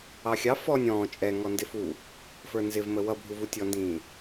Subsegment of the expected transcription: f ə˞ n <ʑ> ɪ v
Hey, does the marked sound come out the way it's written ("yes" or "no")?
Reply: no